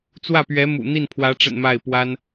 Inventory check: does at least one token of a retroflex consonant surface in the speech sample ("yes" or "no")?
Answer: yes